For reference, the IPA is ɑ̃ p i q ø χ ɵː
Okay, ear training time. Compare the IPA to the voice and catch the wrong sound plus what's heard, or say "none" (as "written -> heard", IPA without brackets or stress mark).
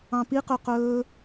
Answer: χ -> q